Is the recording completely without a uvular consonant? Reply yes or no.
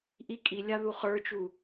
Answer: no